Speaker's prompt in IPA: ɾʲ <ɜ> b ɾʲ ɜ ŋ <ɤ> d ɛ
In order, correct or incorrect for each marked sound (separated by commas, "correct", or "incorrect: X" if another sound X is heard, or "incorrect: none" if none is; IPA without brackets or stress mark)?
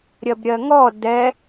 correct, incorrect: ɔ